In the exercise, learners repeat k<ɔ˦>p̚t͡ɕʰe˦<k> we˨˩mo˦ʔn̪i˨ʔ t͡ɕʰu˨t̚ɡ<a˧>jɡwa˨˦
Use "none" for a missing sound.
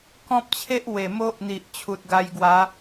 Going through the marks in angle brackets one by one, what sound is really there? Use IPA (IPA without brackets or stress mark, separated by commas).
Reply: ɔ̃˦, ʔ, a˧